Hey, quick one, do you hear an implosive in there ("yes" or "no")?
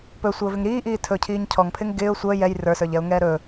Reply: no